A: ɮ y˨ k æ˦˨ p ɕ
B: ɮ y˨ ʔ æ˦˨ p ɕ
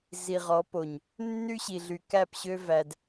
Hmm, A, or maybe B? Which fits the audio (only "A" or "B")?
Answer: A